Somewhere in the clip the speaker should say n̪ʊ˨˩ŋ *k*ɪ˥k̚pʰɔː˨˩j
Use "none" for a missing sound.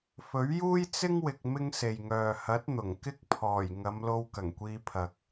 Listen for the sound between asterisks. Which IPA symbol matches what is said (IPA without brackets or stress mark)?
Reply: k